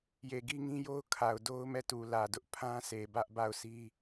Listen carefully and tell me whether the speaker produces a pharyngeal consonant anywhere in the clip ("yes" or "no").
no